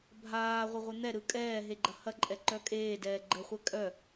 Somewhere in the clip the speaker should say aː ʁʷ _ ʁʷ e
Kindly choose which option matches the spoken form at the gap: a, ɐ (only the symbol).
ɐ